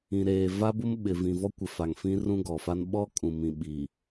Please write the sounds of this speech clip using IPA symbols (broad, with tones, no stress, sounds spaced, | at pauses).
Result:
ĩ˨ ɾ eː˨ v a˦ b ʊ˦ m ɓ ɪ˨ v ĩ˨ v ɔ˦ kʷ ɪ˨ f a˨ ŋ f ĩ˦ r ũ˦ ɡ ɔ˨ f a˦ n ɓ ɔ˦ kʼ ũ˨ m ĩ˨ ɓ i˨